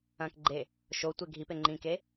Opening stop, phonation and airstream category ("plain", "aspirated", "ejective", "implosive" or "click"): plain